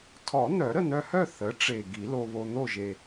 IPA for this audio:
tʰ ɔ˨˩˦ n̪ œ˨˩˦ ɾ ə˥˨ n̪ œ˧ h œ˥˨ θ ə˩˥ ʈ͡ʂ e˨˩ ɡ i˨˩˦ l o˧ β o˧ n̪ o˥˨ ʒ e˨˩

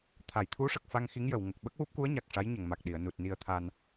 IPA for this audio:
t̪ʰ a˨˩˨ j t̪ʰ u˧˥ ʂ ə˨˩ k̚ f a˧ ŋ x i˧˥ ŋ j ə˨˩˨ w ŋ ə˨˩ k̚ ɓ ə˦˥ k̚ w u˦˥ p̚ k u˧˥ ə̯ ɲ a˨˩ k̚ ʂ a˧˥ j ɲ ə˨˩˨ ŋ m a˨˩ k̚ ɗ i˨˩˨ ə̯ n u˨˩ t̚ n i˧ ə̯ t̪ʰ a˧ n

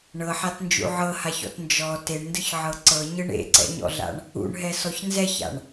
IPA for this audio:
ɳ ɤ ħ a t n d͡ʒ ṵ ʕ ɤ h a ç ɔ̰ t n d͡ʒ ɔ t e ɳ n d ɯ ç ʕ ɤ ǀ ɤ ɲ ɯ ɳ ḛ ǀ ɛ̰ ɲ ɔ̰ ɮ a̰ ɳ | ṵ ɳ ɦ ɛ s ɔ ç n z ɛ ç a̰ ɳ

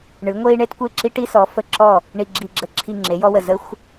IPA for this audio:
ɳ ɨ˩˥ ŋʷ e˥ i̯ ɳ e˥ t kʷ e˥˩ ǁ i˥ ʈ i˥ s ɔ˩˥ f ə˧˩ ǁ ɔ˥˩ | ɳ i˧˩ ɡ͡ǁ i˧˩ ɡ͡ǁ ə˥˩ ǁʰ i˥˩ ŋ͡ǁ e˩˥ j ɔ˥ w ə˧˩ z ə˥ xʷ

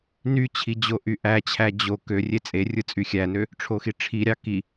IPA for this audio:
n y t͡ɕʰ i d͡ʑ o ʔ y ʔ æ t͡ɕʰ æ d͡ʑ o k ø rʲ e t͡sʼ e rʲ ɯ t͡sʼ y xʲ æ n ø | ʈ͡ʂʰ o x i ʈ͡ʂʰ i ɾʲ ɑ k i

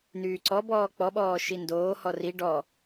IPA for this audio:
n yː ǀ ɔ b ɔː k͡p ɔ ɓ ɔː ʃ i n d oː h ɔ r i ɖ ɔ

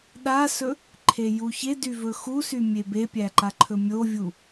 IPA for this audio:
ɗ a s ɵ | ǃʰ e j u ç e d y v ɵ x u s y mʲ e b e pʲ æ ǃ a ǃʰ ɵ mʲ o vʲ u

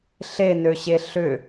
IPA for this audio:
ɬ e n ø ɕ e ɬ ʏ

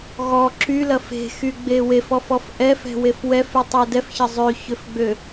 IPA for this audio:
ɣ ɔ ǁ y l ɐ f e̤ x y ɡ͡b e w e f ɔ f ɔ f ʔ ɛ f ɛ̤ w e f w ɛ f y tˤ ɛ d ɛ f ç ɐ zˤ ø ç ø f ɡ͡b ø

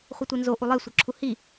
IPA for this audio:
χʷ ɪ tʷ i n z o ʔ u lˠ e sʷ ɤ ǁʰ u h i

